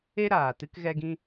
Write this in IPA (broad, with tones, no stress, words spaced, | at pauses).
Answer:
e˦ ɾaː˨ tɨ˦kɣɛ˦ɡĩ˦